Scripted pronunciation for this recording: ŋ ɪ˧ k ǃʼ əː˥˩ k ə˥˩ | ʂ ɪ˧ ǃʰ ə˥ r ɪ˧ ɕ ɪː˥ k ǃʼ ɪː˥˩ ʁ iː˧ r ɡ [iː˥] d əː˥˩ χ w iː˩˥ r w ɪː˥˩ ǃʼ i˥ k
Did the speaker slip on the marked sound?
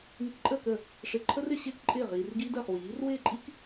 no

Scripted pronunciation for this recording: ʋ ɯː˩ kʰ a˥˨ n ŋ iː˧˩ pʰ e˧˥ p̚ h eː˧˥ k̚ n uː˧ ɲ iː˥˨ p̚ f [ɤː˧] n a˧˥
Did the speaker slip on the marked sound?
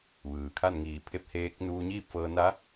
no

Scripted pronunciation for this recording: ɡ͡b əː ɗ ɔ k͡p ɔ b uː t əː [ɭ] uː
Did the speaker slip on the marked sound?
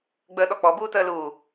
yes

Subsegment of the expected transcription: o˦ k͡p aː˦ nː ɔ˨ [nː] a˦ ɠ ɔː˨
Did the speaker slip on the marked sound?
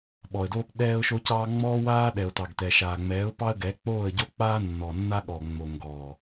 no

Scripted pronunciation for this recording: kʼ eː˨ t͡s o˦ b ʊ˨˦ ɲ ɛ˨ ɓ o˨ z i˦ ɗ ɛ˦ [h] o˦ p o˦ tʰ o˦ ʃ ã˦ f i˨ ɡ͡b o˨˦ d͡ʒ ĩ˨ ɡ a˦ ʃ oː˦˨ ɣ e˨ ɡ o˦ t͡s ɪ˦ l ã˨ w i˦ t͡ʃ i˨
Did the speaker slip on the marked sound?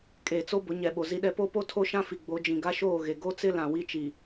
yes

